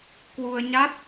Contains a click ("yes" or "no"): no